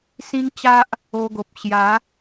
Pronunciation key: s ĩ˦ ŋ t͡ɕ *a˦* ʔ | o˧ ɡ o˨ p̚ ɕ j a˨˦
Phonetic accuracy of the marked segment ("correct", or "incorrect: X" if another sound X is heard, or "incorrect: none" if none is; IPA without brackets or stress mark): correct